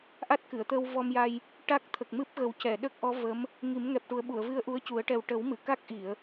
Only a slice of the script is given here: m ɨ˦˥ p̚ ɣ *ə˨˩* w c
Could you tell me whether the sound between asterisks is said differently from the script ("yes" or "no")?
no